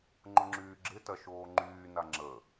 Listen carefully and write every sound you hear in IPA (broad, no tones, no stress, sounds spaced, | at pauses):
ŋ͡ǃ ʊ ŋ͡ǁ yː ɡ͡ǁ ɪ t ɐ ʃ oː ŋ͡ǃ yː n a ŋ͡ǁ ə